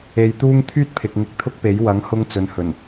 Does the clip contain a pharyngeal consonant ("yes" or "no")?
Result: no